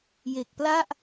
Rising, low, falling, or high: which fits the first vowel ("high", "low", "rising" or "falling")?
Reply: low